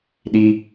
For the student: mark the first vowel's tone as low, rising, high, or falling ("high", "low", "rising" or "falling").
high